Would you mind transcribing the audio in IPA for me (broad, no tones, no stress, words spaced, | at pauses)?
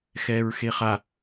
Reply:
xɛːɹxeχa